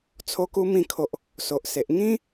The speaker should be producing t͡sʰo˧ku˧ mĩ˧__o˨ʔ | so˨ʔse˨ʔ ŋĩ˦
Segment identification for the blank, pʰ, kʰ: kʰ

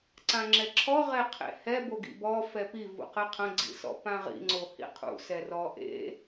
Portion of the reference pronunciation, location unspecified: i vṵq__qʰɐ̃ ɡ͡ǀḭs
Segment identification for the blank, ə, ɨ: ɨ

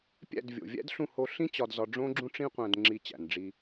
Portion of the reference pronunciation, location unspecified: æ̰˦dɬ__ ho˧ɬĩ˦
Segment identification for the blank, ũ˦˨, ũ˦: ũ˦˨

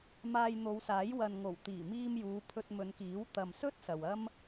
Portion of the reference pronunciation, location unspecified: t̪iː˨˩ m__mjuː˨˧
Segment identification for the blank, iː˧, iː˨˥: iː˧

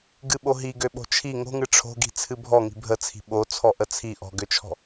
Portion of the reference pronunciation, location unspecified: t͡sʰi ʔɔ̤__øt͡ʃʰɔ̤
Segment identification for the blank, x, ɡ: ɡ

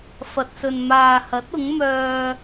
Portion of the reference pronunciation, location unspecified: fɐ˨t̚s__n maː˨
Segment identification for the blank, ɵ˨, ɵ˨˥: ɵ˨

